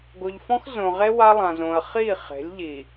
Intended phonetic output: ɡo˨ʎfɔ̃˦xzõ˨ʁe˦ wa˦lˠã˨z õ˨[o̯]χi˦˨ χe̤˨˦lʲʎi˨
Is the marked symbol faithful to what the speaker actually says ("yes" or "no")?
no